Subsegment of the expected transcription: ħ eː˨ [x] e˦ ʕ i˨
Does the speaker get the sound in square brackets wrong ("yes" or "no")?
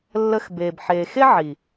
no